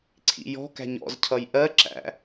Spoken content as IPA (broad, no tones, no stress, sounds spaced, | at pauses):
ǀʰ ḭ j ɔ̤ k æ̤ ɲ ɔ̰ z cʰ ʌ j ʔ ɜ ǁ æ̰